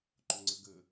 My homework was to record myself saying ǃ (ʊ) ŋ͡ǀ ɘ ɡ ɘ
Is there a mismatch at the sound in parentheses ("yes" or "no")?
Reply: no